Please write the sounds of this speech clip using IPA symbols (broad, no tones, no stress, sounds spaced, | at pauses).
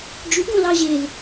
d͡ʒ y ɡ õ l ɑ ʑ e l